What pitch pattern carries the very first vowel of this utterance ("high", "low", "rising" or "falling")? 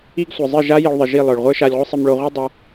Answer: high